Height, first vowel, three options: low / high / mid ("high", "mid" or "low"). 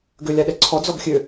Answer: mid